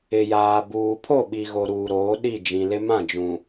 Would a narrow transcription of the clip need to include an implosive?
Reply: yes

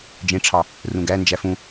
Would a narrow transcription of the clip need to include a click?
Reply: no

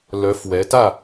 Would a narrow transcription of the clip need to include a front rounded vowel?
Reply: yes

